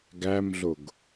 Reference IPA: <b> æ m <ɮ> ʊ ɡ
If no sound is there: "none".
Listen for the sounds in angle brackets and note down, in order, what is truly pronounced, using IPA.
ɡ, ɮ

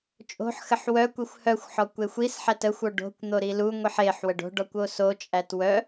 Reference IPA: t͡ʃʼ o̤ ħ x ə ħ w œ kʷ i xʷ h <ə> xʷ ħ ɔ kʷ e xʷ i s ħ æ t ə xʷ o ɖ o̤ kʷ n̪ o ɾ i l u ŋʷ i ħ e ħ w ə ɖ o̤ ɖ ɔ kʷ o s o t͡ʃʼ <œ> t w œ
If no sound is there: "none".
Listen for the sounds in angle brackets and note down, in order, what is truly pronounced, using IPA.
œ, æ

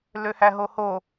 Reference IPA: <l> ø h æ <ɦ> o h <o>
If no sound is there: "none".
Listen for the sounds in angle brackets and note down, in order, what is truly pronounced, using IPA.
l, ɦ, o

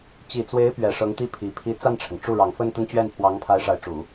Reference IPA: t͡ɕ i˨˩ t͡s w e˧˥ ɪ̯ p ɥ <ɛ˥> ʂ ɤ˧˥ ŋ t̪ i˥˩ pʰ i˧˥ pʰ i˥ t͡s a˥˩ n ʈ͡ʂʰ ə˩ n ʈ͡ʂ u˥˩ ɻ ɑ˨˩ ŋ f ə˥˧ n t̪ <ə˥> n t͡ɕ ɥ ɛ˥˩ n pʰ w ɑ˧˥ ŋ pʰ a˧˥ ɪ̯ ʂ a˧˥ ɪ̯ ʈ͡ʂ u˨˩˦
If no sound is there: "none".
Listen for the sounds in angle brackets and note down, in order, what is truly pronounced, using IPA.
ɛ˨˩, ə˥˧

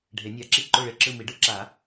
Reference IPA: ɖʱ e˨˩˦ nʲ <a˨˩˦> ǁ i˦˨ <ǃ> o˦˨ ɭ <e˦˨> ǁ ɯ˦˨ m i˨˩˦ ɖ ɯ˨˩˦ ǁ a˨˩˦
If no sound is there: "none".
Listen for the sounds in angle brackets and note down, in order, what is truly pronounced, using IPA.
a˨˩˦, ǃ, e˦˨

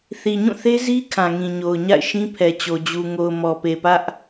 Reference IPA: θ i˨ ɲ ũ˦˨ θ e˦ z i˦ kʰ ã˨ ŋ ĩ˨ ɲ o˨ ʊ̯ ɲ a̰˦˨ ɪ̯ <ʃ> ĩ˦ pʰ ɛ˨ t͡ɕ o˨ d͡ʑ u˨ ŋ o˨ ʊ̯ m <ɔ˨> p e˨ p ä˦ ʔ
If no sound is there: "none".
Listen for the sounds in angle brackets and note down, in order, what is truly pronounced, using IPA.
ʃ, ɔ˨

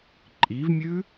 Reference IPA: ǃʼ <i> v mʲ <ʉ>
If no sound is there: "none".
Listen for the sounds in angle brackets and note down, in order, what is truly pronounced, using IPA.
i, ʉ

